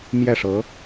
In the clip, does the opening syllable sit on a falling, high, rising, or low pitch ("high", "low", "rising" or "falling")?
falling